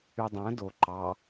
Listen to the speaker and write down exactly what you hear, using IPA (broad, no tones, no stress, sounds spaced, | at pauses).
y dˤ æ̃ d o ǃ ɑ